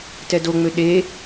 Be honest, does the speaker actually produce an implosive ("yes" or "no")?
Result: yes